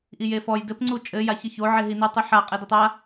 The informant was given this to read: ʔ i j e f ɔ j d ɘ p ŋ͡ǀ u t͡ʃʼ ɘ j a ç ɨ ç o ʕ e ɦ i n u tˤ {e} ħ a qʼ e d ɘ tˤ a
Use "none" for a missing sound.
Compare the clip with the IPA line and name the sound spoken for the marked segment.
ɨ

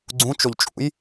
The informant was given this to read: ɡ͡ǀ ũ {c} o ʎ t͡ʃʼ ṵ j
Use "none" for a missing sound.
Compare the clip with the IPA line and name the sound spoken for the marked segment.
t͡ʃ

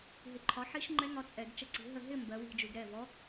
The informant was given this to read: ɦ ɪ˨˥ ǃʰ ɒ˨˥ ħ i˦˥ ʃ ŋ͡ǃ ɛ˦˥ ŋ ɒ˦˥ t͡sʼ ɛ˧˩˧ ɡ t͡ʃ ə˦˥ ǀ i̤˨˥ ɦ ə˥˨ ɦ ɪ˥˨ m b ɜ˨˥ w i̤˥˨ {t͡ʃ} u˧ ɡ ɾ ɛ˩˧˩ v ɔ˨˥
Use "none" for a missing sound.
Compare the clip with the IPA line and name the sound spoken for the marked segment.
d͡ʒ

